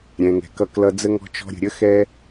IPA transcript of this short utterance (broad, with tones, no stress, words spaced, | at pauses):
ɾʲɛ̃˧ŋɛ̤˧kʌ˦˨klʌ˦ d͡zə˦ŋɔ̤˦t͡ʃɔ̤˦ɾʲə̤˧ ɾʲə˦xɛ˦